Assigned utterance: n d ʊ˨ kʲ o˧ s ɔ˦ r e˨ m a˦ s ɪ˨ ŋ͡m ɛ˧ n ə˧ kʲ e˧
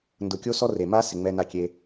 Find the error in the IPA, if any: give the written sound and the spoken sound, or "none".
ə˧ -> a˧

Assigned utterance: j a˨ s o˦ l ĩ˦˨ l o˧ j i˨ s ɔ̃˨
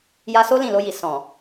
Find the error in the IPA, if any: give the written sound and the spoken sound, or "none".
a˨ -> a˧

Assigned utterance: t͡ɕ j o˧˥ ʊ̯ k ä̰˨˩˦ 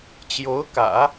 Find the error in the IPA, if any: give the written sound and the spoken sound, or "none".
none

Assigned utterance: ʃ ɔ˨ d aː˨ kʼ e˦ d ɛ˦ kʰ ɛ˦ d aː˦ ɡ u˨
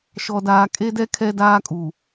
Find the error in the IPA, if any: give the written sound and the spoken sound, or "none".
ɡ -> kʼ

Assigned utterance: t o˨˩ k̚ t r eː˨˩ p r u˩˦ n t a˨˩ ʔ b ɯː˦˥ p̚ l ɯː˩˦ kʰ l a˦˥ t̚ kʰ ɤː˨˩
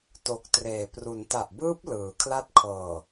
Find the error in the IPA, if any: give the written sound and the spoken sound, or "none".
none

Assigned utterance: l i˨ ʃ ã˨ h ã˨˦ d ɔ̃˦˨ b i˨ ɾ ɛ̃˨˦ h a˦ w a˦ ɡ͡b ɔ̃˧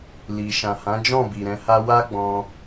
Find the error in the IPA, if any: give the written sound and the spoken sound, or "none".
d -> d͡ʒ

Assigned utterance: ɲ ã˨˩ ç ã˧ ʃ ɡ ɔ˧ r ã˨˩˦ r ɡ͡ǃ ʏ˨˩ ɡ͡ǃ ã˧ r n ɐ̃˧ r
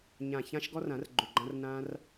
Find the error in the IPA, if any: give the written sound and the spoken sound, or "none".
ɐ̃˧ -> ã˧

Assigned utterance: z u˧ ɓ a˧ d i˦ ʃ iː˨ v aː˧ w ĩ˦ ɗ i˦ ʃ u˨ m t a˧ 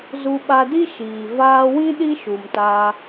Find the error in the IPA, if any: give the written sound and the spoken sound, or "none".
none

